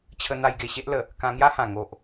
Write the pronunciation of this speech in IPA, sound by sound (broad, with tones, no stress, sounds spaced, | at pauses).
t͡ɕʰ ə˧ n̪ a˧ j ɡ e˨˩ ɕ e˦ ʔ l ə˨˩ | k ã˧ ŋ j a˦ h ã˨˩ ŋ o˨ ʔ